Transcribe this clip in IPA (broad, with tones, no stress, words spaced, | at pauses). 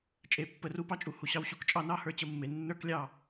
t͡ʃʼe˨˦pːə˨˦ru˦ pɑ˦t͡ʃʼu˨hu˨ɕɑ˧w ɕu˨˦kt͡ʃʼɑ˧nɑ˦ hə˞˧t͡ɕə˦˨mːe˨ nːə˞˦klʲɑ˦˨